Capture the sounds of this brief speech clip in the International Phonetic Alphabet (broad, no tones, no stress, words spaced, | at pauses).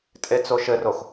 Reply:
tʼet͡soʃɘrox